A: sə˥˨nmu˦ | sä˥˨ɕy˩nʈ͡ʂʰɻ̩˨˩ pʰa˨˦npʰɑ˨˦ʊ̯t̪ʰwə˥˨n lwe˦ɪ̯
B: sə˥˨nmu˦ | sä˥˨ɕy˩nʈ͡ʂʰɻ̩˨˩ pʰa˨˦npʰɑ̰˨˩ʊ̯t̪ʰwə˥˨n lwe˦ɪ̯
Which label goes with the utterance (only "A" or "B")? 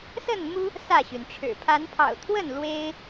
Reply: B